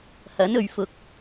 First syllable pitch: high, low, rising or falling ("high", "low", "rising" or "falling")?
rising